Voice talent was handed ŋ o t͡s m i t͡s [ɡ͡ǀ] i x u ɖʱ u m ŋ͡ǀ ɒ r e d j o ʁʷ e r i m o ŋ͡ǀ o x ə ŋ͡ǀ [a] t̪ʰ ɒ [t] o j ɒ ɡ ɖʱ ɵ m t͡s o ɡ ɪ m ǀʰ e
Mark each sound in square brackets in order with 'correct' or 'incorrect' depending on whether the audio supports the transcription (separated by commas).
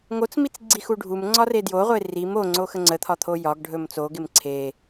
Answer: correct, incorrect, incorrect